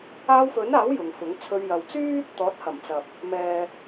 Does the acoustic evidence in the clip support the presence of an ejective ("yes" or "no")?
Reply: no